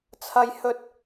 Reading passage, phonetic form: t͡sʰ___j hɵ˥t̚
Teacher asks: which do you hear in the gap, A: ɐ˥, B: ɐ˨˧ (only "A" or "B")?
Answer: A